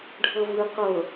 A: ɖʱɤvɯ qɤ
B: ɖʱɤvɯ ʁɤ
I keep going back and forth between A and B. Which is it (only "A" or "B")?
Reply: A